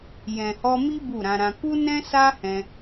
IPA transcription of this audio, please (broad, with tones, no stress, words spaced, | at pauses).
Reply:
jɛ̃˨hɔ˧mi˦ bu˦˨ɾã˧ɾã˧ ku˦nɛ̃˦sa˦ hɛ̃˧